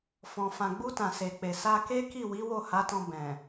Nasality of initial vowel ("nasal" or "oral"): nasal